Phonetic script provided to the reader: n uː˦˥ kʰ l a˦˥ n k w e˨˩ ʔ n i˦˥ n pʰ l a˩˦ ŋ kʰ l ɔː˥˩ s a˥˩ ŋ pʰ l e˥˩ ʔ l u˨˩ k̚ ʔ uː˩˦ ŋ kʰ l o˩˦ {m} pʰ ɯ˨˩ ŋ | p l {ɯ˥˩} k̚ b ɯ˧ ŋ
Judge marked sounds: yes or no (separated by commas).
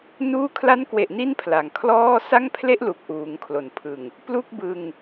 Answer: no, no